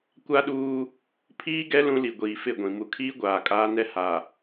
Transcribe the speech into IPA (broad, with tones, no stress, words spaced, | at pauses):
kʷa˦ɗuː˦ | pʰiː˦ ɡɛ˦ lũ˦ li˨ɡʷiː˨ fɪ˦˨ɡʷĩ˨ mu˨kʰiː˦ ɡʷaː˨kʼaː˦nɛ˦ ha˨